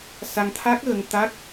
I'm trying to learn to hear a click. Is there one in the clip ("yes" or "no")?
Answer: no